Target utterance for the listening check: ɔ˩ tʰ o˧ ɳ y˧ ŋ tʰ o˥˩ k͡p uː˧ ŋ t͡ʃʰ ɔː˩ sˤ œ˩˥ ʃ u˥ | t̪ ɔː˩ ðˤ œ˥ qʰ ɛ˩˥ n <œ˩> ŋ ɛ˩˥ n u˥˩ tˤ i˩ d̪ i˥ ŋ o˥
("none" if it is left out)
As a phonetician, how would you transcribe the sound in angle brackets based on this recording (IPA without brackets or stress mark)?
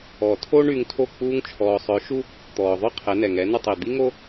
ɛ˩